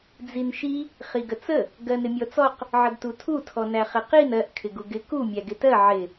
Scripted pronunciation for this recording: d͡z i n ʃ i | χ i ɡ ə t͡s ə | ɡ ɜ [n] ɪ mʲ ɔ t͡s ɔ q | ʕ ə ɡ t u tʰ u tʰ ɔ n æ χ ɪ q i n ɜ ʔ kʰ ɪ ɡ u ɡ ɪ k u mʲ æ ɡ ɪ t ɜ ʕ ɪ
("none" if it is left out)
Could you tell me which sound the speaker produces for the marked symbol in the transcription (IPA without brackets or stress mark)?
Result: n